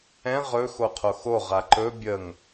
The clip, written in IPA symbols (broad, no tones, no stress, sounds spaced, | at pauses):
ɛ̃ ʁ ɵ x o qʰ o x o ʁ a ǃ ɵ bʲ ə ŋ